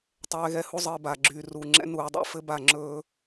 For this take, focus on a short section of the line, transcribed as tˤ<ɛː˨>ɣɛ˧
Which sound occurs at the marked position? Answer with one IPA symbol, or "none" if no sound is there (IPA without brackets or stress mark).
ɛː˧